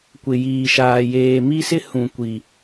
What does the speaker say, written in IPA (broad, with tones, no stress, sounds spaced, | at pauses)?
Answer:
kʷ ɪ˨ j iː˨ ʃ aː˨ j eː˨ m i˦ s ɪ˦ h ũ˨ kʷ i˨